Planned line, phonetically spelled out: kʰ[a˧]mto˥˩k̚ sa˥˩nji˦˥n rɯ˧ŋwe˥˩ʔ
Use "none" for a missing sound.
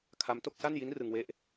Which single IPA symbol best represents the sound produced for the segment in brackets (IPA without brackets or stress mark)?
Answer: a˦˥